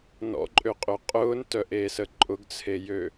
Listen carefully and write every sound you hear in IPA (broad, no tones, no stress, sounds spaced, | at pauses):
n ɔ̰ ǃʼ ø qʼ ø qʼ ʊː n t œ ʔ eː s ə ǃʼ ʊ ɡ t͡sʰ e j ø